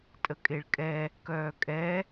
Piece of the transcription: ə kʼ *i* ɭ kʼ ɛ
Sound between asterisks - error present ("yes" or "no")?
yes